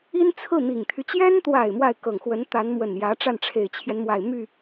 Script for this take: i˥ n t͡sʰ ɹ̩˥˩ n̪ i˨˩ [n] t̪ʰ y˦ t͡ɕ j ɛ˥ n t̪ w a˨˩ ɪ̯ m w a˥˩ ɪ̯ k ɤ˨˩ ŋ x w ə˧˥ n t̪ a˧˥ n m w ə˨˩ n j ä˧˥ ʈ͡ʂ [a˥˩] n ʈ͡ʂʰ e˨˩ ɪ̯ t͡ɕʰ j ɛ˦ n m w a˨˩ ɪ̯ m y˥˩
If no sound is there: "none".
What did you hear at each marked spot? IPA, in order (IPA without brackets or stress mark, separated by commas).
ŋ, a˥˩